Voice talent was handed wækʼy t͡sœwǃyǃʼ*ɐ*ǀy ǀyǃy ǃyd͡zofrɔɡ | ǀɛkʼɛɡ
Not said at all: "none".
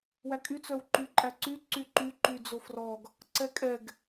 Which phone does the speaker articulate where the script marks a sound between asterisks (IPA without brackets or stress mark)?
æ